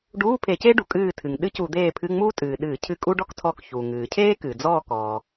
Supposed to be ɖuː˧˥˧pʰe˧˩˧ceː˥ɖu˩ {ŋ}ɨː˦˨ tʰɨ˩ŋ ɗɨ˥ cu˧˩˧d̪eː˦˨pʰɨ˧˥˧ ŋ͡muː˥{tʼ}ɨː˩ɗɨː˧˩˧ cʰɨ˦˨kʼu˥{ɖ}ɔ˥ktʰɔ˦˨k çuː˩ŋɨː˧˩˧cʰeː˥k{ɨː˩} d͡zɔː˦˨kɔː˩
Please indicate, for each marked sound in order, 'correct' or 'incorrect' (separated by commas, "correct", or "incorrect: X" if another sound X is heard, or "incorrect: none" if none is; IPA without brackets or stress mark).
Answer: incorrect: kʼ, correct, correct, correct